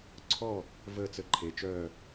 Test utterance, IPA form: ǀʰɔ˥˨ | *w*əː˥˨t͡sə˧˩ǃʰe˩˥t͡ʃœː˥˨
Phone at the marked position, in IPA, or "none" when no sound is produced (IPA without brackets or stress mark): v